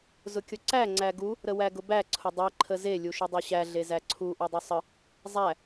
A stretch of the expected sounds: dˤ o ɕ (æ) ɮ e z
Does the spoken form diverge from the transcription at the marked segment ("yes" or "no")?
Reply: no